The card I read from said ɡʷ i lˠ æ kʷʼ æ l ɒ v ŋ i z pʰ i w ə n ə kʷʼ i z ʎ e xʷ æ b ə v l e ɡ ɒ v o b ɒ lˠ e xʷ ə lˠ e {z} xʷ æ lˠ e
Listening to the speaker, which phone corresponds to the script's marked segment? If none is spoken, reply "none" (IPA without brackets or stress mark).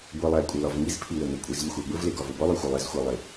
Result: z